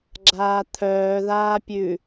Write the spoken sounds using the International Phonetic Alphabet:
ɡ͡ǁ aː t̪ʰ œː ð aː pʲ ʉ

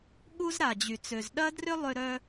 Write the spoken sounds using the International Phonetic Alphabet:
ɠ u˥ z ɾ a˩ d͡ʑ y˩ t͡s ø˩ z ɗ ɐ˥ d r ʏ˥ lˠ ʏ˧ ɾ œ˧

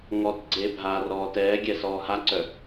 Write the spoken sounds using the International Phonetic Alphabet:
ŋ ɔ t ɡ͡ǀ e bʱ aː r ɔː t ɛː ɡʲ ɛ s ɔː h a ǀ œ

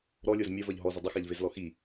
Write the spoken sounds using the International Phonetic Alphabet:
ɾ ɔ lʲ o z mʲ ɐ v ɐ ʎ ɦ ɔ z ə dˤ ə x a ʎ v e z l ɔ x i

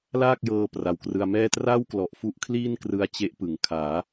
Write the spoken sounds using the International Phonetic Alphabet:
l aː˥˩ k̚ j ɤː˧ p r a˨˩ w k r ɯ˧ a̯ m ɛː˥˩ t r aː˥˩ w k l ɔ˨˩ ʔ f u˦˥ ʔ kʰ l iː˥˩ n k r ɯ˧ a̯ t͡ɕ e˦˥ ʔ p ɯ˩˦ ŋ kʰ aː˩˦

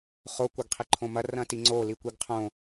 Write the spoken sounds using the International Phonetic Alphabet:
χ o kʷ ɐ ɡ qʰ i ǃʰ õ m ɐ r ɐ̃ t i ŋ͡ǀ o l i kʷ i ɡ qʰ õ

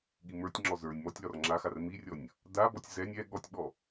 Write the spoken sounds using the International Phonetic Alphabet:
ɠ i m ə˞ tʲ ŋ͡ǁ ɔ z ə˞ nʲ m ɔ tʲ l ɒ r ŋ͡ǁ a x a r m i rʲ ɔ nʲ | d a b ɔ tʲ z ɛ nʲ ɛ ɠ ɔ tʲ ɓ ɔ

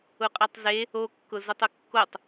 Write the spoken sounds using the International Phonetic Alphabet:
ʊ qʼ ɛ tˤ z e | o kː ʊ z ʊ tˤ ʊ kː o tˤ

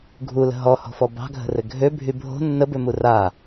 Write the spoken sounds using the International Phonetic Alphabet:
ɡʱ u l ə̤ ɦ ɔ h ɔ̤ f ɔ b ɑ̤ ɡʱ ə̤ r ɘ ɡʱ ø bʱ y bʱ o̤ nː ə b ø m u r a

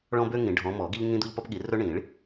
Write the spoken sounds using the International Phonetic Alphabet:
ɭ ɔ̃˦ b ø˦ ŋ ĩ˨˩˦ ɖʱ ɔ̃˨˦ m ɔ˨˩˦ ɡ i˦ ʎ ŋ ĩ˦ d̪ u˦ ʎ p ɒ˦ p ɠ i˨˩˦ r ɵ˦ ɳ ĩ˨˩˦ ɭ

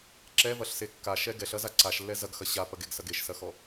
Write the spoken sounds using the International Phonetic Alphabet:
ǁ ɛ v ɐ ɬ s e kː a ʃ ɛ ɡ ɛ ɬ ɐ z a ǀ a ʃ lː ɛ z ɐ ɡ x ɐ ɕ a p ɐ ɡ e ɡ s ɐ ɡ e ʃ s ɐ x ɔ

